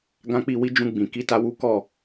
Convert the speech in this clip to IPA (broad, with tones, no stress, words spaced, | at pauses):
ɡã˧k͡pi˧ wi˧ d͡ʒũ˧ɡ͡bĩ˨ ki˧ta˧wu˦ kɔ˦˨